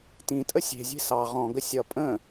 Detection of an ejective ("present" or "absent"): present